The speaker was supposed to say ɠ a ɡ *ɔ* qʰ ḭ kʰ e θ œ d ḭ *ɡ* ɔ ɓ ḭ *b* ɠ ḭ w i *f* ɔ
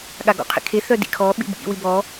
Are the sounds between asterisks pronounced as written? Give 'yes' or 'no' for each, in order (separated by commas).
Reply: no, no, yes, no